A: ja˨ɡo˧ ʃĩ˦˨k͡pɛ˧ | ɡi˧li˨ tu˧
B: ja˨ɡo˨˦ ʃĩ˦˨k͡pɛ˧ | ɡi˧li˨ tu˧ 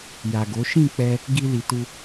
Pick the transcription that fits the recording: B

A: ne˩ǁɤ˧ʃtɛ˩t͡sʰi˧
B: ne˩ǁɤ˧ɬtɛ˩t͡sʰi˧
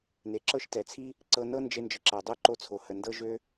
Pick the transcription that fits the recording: A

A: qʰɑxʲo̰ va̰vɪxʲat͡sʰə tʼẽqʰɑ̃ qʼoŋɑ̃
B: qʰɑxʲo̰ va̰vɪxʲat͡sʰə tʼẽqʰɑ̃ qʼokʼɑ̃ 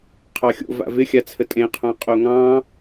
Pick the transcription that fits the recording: A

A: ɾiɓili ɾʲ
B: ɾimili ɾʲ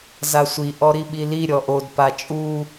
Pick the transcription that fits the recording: A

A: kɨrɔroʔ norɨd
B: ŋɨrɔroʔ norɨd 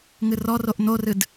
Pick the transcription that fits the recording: B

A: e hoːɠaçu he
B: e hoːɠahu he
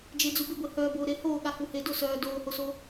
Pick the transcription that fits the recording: B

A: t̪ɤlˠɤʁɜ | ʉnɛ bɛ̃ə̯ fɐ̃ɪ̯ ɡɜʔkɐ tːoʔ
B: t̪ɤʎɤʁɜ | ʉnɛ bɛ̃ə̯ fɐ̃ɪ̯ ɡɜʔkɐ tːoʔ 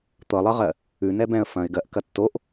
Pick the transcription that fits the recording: A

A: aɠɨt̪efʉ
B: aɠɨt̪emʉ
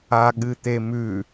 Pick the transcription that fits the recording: B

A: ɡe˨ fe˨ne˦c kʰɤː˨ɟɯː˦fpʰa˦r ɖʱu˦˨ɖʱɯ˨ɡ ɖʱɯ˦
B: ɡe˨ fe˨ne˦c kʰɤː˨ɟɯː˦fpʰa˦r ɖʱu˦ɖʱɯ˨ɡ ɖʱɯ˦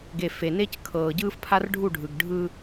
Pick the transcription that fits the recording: A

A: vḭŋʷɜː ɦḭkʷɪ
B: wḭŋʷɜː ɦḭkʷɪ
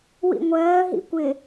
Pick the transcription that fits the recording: B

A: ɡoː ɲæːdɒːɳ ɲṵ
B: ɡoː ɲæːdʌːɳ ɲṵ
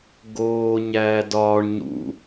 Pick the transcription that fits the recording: A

